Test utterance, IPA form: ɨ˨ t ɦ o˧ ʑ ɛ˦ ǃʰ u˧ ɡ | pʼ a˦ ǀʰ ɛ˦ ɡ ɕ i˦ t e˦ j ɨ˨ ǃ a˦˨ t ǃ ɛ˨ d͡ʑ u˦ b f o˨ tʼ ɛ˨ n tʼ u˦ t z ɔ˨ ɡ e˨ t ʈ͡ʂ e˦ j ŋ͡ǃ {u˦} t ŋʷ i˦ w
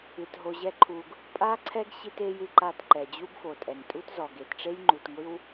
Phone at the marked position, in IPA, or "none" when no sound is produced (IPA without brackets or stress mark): u˨